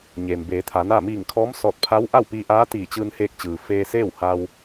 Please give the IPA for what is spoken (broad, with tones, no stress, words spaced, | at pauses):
ɲeː˩mbeː˩˧t̪ʰa˩˧naː˥˨ miː˧˩ŋkʰɔː˧˥msɔː˧˩t̚pʰa˧˥w ʔa˥˨wpiː˧ʔaː˧˥ t̪iː˧˩t͡ɕɯː˧n heː˧k̚t͡ɕɯː˩ feː˧seː˥˨wha˧w